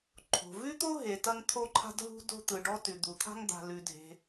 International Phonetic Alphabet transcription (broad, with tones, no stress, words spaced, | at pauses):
ǃʰo̤˩vʉ˥t̪o˥ ɦe˩tɐ˥ŋ t̪ʰo˥ǃʰa̤˥dɦṳ˥ do̤˥t̪ɯ˩ɖɔ˥tʉ˩ d̪u˩t̪ʰa̤˥ŋ d̪a̤˩lʉ˩ dʱe̤˩